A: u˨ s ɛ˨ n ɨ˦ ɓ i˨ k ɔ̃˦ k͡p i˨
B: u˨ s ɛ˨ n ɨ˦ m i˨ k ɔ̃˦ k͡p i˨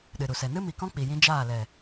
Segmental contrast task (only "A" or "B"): B